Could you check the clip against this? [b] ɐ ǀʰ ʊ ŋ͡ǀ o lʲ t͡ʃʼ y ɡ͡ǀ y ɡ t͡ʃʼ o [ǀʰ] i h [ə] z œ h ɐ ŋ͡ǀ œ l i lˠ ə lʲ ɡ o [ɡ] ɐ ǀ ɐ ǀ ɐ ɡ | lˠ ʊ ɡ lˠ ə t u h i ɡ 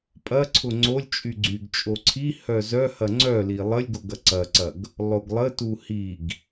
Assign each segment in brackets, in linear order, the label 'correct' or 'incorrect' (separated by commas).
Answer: incorrect, correct, incorrect, correct